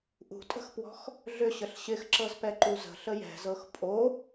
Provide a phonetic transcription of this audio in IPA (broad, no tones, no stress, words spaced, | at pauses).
ʔṳtʼə̤xpwɔ̤x | ɮʏɕəɬ ɕɪxǁɤzpɛǃu zə̤ɬə jɛ̤zɤx pʼo